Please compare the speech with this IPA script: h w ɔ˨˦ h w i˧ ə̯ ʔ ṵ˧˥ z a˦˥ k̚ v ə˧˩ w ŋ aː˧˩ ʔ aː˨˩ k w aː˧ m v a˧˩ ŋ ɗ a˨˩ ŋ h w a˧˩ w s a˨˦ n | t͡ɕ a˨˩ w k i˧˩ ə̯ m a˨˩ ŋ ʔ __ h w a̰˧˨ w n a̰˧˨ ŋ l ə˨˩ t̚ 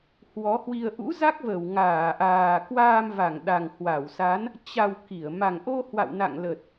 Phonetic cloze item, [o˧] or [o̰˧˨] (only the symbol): o˧